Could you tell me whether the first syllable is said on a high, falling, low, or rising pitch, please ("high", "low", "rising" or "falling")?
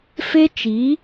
high